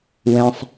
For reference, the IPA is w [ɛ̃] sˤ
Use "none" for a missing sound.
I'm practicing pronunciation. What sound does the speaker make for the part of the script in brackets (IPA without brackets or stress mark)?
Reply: ɛ̃